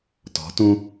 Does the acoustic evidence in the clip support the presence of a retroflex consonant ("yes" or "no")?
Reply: no